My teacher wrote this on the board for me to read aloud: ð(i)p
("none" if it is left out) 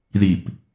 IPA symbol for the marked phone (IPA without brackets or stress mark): i